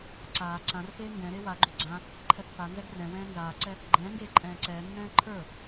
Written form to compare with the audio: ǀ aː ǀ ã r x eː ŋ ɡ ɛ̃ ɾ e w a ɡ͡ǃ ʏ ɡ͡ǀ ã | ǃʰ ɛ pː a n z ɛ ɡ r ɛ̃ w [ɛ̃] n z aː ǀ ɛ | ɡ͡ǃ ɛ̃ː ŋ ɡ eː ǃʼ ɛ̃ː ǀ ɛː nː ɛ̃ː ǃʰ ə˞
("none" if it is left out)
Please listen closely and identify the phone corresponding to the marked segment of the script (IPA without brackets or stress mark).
ɛ̃ː